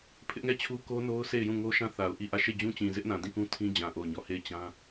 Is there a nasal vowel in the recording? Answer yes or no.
yes